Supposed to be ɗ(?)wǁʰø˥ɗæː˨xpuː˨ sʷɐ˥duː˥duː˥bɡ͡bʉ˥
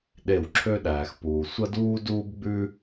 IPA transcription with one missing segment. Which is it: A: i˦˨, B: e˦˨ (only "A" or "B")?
B